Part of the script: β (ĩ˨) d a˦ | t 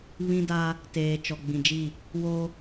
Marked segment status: incorrect: ĩ˦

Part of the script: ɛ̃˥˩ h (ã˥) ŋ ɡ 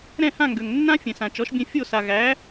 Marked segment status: incorrect: ã˥˩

